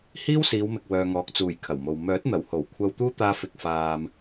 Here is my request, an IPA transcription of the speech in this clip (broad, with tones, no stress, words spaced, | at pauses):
hiː˥wsiː˨˧wmɪ˨k̚ wœː˨ŋɔː˨k̚t͡suː˨˩j kʰɐ˨˩wmo˨w mœː˨˥t̚n̪ɐ˨˩who˨˩w kʷʰɐ˧wt̪uː˥t̪aː˧ fɪ˧k̚faː˧m